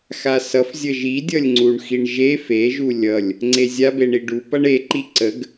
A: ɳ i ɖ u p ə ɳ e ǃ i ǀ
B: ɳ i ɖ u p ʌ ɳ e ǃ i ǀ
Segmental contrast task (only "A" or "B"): B